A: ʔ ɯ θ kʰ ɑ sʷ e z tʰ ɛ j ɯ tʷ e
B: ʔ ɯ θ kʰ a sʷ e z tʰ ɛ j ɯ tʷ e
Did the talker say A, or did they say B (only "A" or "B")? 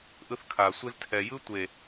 B